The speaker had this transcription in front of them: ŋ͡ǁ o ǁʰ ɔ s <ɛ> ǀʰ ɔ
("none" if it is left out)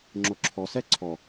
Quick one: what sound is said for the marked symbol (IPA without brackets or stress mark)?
ɛ